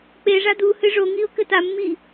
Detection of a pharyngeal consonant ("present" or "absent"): absent